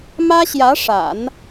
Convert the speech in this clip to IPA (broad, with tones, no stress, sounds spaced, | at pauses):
m ä˥ ɕ j ä˧˥ ʂ a̰˨˩˦ n